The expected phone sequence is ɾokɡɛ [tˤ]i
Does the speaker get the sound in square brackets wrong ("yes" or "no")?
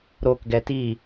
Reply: yes